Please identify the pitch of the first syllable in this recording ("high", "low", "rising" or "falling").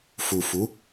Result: low